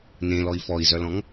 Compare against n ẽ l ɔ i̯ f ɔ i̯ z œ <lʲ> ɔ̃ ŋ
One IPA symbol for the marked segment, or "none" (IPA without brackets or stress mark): l